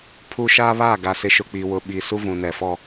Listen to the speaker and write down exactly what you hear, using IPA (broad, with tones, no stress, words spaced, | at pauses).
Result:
pʰu˦ ʃaː˦βaː˦˨ ɡa˨sɪ˨ʃʊ˨ k͡pi˨wʊ˨ɓi˨ su˦vũ˨nɛ˨fɔ˦